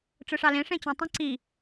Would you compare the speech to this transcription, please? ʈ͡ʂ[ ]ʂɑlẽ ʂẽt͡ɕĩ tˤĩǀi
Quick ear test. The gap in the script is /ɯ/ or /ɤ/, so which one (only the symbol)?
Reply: ɯ